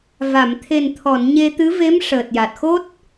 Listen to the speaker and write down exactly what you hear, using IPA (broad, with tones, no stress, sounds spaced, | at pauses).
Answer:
v a˨˩˨ m t̪ʰ e˨˩ n t̪ʰ ɔ˨˩˨ n ɲ e˧ t̪ ɨ˧˥ v e˧˥ m ʂ əː˨˩ t̚ j a˨˩ t̚ x o˦˥ t̚